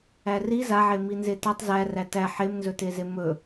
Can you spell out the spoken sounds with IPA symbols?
æ r i z a ʕ e m i n z e t a tˤ z æ r æ t æ ħ e m n z ɵ t e z e m ɵ

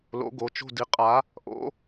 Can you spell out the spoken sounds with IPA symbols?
l o̰˨˥ ɡ o˩˧˩ t͡ʃ o̤˥˧ d i˩˧ qʼ a˨˥ | ʔ o̰˨˥

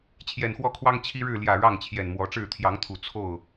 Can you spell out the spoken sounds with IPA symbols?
t͡ɕʰ j ɛ˨˩ n x w ɔ˥˨ kʰ w ɑ˦ ŋ t͡ɕʰ i˦ ɻ ɻ̩˥˨ l j ä˨˩ ɻ ɑ˥˨ ŋ t͡ɕʰ j ɛ˨˩ n m w ɔ˨˦ ʈ͡ʂ ɻ̩˥˨ t̪ʰ j ɑ˨˦ ŋ t̪ʰ u˨˩ t͡sʰ o˥˨ ʊ̯

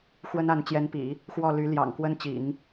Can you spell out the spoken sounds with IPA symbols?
x w ə˥ n a˧˥ n t͡ɕ j ɛ˧˥ n p ḭ˨˩˦ | x w ɔ˥˩ l y˧˥ l j ɑ̰˨˩ ŋ k w ə˥ n t͡ɕ ḭ˨˩˦ ŋ

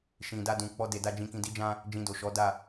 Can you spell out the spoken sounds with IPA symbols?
ʃ ĩ˨ d a˧ d ũ˨ k͡p ɔ˧ d e˨ d a˧ d͡ʒ ĩ˧ k ĩ˧ d i˦ d͡ʒ ã˦ | d͡ʒ ĩ˧ d o˨ ʃ ɔ˨˦ d a˦˨

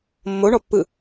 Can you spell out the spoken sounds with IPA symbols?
mː o ɳ ɔ pː ɯ

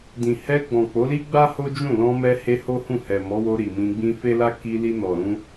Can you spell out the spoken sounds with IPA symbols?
d ĩ˨ h ɛ˧ ɡ͡b ɔ̃˨ k͡p o˨˦ l i˦ ɡ͡b a˦ h o˦ d͡ʒ ũ˦˨ l ɔ̃˧ m ɛ˧ h e˧ h o˦ h ũ˦˨ h ɛ˨ m ɔ˨˦ w o˧ ɾ i˨ m ĩ˧ ɡ͡b ĩ˧ f e˦ l a˦ k i˧ l i˧ n ɔ˨ ɾ ũ˧

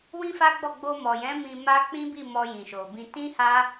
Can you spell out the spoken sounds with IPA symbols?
w ĩ˦ f a˦ ɡ͡b ɔ˦˨ ɡ͡b o˧ m ɔ˨ j ɛ̃˨˦ m ĩ˧ m a˦ k͡p ĩ˦ b i˦˨ m ɔ˧ j ĩ˨ ʃ o˨ b ĩ˧ t ĩ˦ h a˦

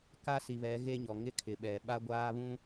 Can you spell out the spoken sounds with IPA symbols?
k a˦ s i˨ β ɛ˨˦ ɣ e˦ ɲ ɔ˨ ŋ ɪ˦ kʰ ɪ˨ ɓ ɛ˨ ɓ a˦ ɡʷ aː˦ β ũ˦

